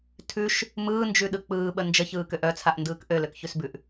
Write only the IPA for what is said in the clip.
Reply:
tʰ ʉ ʃ | m ɯː n d͡ʒ ʉ ɗ ɯ k͡p ɯː ɓ ə n d͡ʒ ə ç ɯː k ø ʔ œ t͡sʰ a ʔ n d ɯː k ʔ ø l ø k ç ʉ s b ʉ ʔ

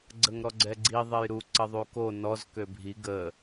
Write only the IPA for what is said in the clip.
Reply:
ɡ͡ǀ ə ŋ ɾ ɔ ɡ͡ǀ ɛ ɡ͡ǀ i ðˤ e j ɾ u ǀ ə ðˤ u k o n ɔ z k ø bʱ i ɡ ə

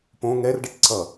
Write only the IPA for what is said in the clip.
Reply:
p õ ŋ ɛ r ɖ ʌ ʈ ǀ ʌ

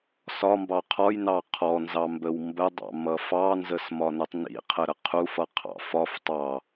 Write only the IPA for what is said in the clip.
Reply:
s ɒ m b ɑ qʰ ɔ j n ɑ qʰ ɔ n z ɑ m b ə w m b ə dˤ ɑ̰ m ʌ f ɑ n z ə s m ɒ n ə tˤ n ḭ qʰ ə ɾ ə qʰ u f ʌ qʰ ɑ̰ f ɒ f tˤ ɑ

